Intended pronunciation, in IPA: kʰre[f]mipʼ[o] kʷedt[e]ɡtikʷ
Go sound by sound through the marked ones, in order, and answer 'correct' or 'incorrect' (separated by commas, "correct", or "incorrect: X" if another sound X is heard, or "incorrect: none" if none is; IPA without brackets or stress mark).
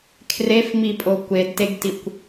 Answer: correct, correct, correct